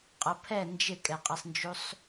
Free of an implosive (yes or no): yes